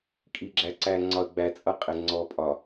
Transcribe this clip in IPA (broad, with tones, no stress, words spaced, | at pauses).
kʼi˨ɡ͡ǁæ˨ ǀæ˨ ŋ͡ǀɒ˨ə̯ɡ͡bæ˨ t͡sʼʌ˦qʼɪ˨ ŋ͡ǀɔ˨pʼɒ˨